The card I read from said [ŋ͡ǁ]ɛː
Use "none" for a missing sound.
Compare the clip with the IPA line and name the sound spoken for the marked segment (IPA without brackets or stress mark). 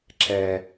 ǁ